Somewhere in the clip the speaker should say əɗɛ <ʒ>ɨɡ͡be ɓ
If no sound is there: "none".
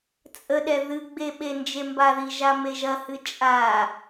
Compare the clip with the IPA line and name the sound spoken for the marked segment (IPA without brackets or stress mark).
ð